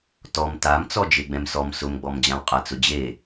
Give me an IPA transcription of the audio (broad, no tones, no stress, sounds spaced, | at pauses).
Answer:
t ɔ m t a m t͡s ɔ d͡ʒ e ɡ͡b ɛ̃ m s ɔ m s ʊ m ɡ͡b ɔ m d͡ʑ ã w qʼ a t͡s ʊ d͡ʑ e